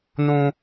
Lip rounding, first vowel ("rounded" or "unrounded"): rounded